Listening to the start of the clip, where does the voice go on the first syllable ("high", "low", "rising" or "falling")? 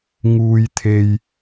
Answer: low